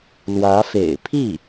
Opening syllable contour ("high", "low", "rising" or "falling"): rising